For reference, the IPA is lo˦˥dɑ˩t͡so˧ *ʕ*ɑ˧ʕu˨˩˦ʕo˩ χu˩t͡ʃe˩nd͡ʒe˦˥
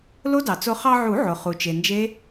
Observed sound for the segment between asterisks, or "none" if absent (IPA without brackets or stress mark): χ